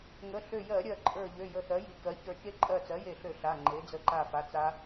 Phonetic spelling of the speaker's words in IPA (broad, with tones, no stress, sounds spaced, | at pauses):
ŋ ə˩˧˩ ɬ ø˧˩ j ɜ˧˩˧ ɾʲ ɜ˧˩ ǃʼ ə˞˧˩ ʎ ø˩˧˩ j ə˧˩ θ ɜ˩˥ j i˩˥ k ɜ˩˥ ç ə˞˧˩ t͡ʃ e˦˥ ǃʼ ɜ˧˩ t͡s ɜ˩˥ j e˧˩ ɬ ø˧˩˧ ɬ a˩˧˩ ŋ͡ǃ e˩˥ d͡z ə˧˩ ǃ a˧˩ f a˩˧˩ t͡s a˦˥